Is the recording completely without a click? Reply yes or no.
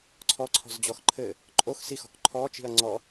no